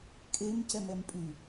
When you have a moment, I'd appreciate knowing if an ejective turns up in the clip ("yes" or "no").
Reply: yes